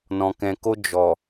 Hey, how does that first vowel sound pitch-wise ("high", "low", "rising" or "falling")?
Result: low